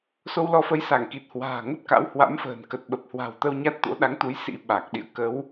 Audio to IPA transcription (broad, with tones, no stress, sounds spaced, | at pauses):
s o˧ w l ɔ˨˦ f ə˨˦ j s a˧˩ ŋ k i˨˩ t̚ h w a̤ː˨˩ ŋ ə˦˥ t̚ k a̰˧˥ w h w a̰˧˥ m f ə̤ː˨˩ n k ə˨˩ t̚ ɓ ə˨˩ p̚ h w a̤˨˩ w t̪ ə˧ w ɲ a˦˥ t̚ t̪ o̰˧˥ ɗ a˨˦ ŋ t̪ u˨˦ j s ḭ˧˥ ɓ a˨˩ k̚ ɗ ḭ˧˨ ə̯ k ə˨˦ w